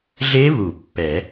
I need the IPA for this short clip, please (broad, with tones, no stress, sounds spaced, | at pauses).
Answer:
ɮ e˦˥ β u˨˩˦ pː ɛ˨˩˦